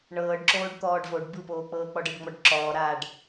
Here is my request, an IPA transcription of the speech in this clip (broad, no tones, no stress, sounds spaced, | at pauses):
ɳ ɤː ɖ ǁ oː ɖ t̪ ɔː ɖ v o ɖ b ɯ p oː k͡p ɤː k͡p ɔ ɖ ɤ ɖ ŋ͡m ɔ ɖ ǁ ɔː ɾ a ɖ